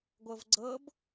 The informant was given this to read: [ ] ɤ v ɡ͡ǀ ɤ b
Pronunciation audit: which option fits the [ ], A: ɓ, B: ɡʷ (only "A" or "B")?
B